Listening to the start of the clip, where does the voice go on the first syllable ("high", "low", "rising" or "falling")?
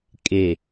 low